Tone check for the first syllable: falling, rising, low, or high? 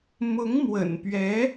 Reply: rising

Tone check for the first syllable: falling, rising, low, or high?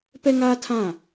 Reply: high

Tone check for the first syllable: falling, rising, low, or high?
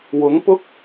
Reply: rising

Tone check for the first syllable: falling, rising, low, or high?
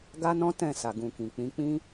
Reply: high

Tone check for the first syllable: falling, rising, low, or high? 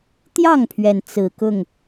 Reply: falling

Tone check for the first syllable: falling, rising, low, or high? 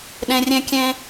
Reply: low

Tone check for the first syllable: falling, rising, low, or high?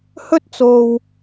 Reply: high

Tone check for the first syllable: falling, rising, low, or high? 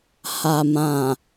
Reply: low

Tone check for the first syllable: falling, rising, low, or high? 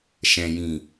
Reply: low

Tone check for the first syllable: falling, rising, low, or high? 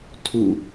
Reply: falling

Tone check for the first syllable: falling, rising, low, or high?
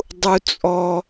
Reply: high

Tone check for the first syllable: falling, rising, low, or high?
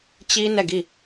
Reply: high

